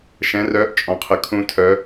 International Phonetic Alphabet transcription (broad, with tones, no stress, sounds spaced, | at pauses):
ʃ ɛ̃˦˥ r œː˦˥ ʔ t͡ʃʼ ɔ̃˦˥ qʰ ə˦˥ kʰ ũ˦˥ tʰ œ˦˥